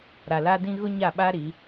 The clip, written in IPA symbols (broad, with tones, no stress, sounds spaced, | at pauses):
ɾ a˨ l a˦ d ĩ˦ ɣ ʊ˦ ɲ a˦˨ ɓ a˦ ɾ i˨˦